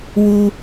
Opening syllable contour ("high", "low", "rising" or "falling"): high